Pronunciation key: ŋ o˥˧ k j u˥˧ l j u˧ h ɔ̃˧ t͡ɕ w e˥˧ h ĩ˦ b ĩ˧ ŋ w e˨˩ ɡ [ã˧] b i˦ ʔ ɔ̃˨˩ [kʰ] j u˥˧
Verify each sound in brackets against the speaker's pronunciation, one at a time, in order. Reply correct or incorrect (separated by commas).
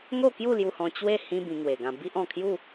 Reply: correct, correct